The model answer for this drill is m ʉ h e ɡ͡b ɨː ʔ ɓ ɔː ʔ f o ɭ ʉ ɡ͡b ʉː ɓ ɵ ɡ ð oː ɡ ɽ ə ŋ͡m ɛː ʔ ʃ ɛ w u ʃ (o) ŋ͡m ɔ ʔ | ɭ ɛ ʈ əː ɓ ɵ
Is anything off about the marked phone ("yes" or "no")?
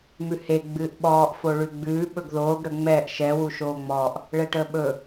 yes